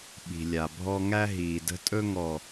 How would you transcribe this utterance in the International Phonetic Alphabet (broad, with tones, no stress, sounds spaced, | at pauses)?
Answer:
ɓ i̤˨ lʲ a˨ bʱ ɔ˦ ŋ æ˦ ɦ iː˨ d ə̤˦ tʼ ɵ˦ ŋ ɔ˨